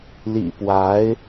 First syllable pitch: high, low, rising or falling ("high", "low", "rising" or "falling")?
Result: low